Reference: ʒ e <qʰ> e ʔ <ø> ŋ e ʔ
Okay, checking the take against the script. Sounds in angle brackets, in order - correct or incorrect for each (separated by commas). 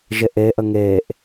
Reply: incorrect, incorrect